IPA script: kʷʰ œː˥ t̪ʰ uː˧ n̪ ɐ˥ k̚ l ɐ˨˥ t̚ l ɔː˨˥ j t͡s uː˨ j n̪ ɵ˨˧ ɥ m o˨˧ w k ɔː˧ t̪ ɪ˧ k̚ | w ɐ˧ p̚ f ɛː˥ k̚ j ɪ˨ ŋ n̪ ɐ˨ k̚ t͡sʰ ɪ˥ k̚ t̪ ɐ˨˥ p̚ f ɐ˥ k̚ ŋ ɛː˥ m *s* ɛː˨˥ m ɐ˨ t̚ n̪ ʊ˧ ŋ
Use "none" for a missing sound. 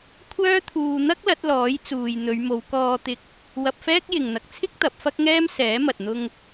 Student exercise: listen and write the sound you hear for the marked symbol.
s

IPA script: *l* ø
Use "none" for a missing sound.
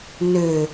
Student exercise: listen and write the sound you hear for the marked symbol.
n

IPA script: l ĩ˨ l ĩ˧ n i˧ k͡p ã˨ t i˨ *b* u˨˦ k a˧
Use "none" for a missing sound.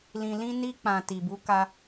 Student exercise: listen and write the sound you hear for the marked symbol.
b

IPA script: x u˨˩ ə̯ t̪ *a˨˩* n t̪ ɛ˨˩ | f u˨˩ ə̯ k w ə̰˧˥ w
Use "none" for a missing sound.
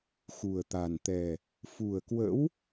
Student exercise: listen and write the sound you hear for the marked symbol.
a˨˩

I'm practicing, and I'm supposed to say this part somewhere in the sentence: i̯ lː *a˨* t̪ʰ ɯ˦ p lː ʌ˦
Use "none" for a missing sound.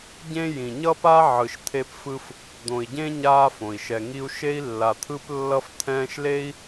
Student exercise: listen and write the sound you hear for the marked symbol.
a˨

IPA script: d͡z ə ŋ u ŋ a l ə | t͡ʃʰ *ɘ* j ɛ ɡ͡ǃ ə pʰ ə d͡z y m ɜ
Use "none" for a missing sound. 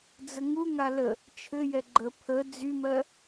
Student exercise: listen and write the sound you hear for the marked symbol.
ɘ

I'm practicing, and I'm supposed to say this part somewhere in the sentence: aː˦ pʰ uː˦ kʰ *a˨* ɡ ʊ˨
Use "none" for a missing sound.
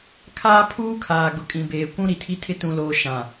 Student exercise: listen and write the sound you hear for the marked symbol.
aː˨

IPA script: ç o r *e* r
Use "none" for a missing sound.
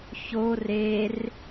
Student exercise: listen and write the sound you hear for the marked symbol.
e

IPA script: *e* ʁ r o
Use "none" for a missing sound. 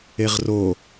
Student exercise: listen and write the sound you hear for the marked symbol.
e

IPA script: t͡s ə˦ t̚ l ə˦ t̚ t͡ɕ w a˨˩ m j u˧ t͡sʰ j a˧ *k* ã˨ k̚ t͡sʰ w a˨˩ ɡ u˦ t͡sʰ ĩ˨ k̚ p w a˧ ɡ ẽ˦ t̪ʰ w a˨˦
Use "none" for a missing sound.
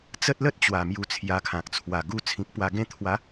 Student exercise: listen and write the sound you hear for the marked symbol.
kʰ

